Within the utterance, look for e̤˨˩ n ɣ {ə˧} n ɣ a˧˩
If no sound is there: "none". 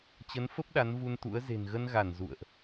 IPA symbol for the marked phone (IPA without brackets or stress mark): ə˧